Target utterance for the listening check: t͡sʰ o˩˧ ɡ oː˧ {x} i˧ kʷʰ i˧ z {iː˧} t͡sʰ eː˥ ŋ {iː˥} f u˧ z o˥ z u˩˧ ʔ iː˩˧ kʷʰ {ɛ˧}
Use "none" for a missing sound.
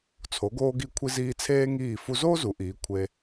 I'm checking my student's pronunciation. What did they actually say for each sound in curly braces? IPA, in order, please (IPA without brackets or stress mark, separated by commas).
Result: ɡ, iː˧, iː˧˩, e˧